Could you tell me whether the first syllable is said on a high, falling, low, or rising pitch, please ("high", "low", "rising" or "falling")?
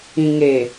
low